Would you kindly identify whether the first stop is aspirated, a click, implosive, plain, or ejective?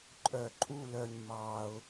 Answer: click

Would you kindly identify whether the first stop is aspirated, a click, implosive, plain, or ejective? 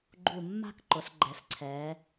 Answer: click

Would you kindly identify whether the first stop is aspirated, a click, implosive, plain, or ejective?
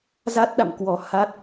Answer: plain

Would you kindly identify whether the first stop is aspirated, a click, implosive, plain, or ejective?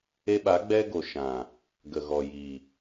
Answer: implosive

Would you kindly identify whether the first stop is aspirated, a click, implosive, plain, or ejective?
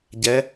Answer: plain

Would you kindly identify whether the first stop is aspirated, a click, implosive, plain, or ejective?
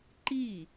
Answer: click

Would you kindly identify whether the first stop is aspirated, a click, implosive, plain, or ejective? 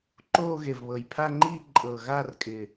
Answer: click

